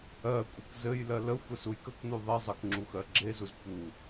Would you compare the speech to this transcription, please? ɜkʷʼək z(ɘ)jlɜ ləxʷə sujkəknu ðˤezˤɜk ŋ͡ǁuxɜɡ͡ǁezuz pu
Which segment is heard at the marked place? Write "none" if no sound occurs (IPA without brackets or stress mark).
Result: ɘ